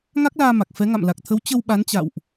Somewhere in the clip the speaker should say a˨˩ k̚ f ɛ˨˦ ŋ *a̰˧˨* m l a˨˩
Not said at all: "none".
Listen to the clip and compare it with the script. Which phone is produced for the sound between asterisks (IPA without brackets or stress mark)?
a̰˧˨